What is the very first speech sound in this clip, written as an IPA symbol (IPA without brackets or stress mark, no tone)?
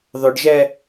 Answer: ðˤ